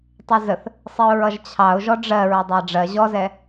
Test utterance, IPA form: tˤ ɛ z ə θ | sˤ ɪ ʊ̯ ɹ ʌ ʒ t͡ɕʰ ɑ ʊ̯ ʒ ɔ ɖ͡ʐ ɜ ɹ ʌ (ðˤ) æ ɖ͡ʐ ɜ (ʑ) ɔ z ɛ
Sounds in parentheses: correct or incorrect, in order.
incorrect: dˤ, correct

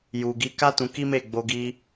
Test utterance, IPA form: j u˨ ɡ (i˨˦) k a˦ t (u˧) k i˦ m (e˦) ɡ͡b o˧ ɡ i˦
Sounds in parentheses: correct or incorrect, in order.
correct, incorrect: ũ˧, incorrect: e˦˨

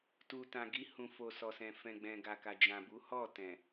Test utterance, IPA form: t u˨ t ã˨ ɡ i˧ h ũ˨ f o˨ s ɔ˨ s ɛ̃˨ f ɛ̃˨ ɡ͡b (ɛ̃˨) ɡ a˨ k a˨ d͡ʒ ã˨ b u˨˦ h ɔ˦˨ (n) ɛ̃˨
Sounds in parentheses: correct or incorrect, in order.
correct, incorrect: t

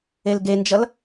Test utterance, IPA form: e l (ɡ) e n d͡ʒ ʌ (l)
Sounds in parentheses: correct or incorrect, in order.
correct, correct

